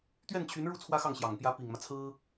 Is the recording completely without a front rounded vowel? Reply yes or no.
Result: no